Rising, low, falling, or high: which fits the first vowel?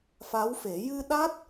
rising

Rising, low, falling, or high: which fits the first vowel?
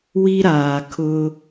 high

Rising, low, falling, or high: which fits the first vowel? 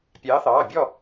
rising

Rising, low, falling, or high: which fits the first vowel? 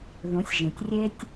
rising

